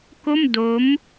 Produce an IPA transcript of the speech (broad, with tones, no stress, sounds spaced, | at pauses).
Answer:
k o˥˩ m d o˦˥ m